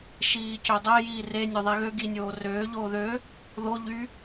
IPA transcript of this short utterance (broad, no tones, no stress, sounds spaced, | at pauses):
ʃ iː c ø dˤ ɛ j iː r e nʲ ø ðˤ i ɣ ø ɡ i nʲ oː r øː ʎ oː ð ø | ð o ʎ y